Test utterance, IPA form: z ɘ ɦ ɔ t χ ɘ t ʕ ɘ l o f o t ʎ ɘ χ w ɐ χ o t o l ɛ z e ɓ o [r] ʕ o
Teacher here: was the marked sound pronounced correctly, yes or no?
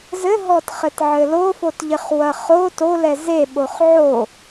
no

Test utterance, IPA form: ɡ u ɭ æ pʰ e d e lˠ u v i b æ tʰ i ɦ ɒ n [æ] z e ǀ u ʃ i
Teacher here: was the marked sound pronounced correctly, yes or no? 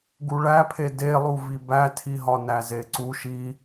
yes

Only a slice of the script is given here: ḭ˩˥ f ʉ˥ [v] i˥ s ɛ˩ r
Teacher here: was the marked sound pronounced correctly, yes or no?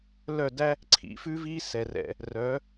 yes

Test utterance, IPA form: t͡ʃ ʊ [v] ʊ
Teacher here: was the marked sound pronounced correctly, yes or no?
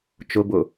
no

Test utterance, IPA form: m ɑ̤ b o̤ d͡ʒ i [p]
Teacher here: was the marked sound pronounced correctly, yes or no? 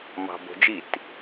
no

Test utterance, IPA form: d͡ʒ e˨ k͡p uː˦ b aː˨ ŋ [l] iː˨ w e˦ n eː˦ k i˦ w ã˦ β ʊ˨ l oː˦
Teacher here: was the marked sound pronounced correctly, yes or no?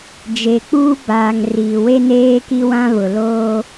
no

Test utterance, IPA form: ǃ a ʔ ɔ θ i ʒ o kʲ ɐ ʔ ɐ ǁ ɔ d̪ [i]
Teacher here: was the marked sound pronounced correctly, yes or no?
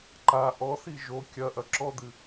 no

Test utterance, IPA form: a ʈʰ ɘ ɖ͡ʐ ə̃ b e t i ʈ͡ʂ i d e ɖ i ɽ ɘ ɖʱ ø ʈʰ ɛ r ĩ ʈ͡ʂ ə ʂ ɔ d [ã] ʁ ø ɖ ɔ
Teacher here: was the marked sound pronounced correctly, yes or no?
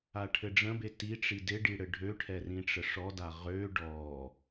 no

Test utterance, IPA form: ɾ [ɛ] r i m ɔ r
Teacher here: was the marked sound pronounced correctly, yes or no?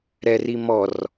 yes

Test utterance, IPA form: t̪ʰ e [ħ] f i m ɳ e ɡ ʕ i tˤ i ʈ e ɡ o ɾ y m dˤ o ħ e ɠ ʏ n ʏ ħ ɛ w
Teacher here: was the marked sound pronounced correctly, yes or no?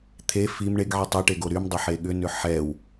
no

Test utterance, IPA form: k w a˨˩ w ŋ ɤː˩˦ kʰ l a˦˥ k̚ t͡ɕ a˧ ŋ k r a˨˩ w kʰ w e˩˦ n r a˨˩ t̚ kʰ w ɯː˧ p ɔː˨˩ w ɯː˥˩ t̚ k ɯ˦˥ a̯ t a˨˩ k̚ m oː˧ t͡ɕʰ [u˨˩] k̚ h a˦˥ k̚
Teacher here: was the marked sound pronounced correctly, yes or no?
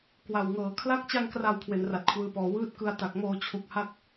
yes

